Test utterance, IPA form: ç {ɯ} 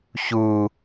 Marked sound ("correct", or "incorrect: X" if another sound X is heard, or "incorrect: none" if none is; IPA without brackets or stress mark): incorrect: u